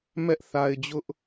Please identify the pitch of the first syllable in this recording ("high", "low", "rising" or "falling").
high